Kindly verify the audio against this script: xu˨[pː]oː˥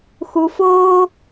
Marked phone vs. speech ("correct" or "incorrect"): incorrect